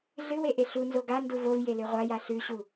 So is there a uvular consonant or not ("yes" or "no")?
yes